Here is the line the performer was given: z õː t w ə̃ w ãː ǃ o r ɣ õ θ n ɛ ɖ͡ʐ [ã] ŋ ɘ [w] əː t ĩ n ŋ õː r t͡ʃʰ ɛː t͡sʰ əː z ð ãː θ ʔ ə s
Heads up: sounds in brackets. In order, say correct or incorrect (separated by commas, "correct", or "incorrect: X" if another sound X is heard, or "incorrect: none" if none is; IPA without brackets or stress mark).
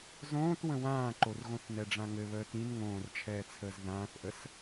correct, incorrect: β